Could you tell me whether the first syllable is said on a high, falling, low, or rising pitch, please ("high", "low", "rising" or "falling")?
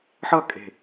falling